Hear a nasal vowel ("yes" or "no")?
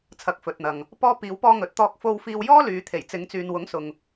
no